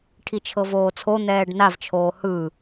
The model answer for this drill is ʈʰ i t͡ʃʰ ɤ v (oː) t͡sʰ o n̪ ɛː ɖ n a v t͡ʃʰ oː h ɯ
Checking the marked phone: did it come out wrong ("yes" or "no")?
no